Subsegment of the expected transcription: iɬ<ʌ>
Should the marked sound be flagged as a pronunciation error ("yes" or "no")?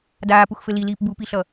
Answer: no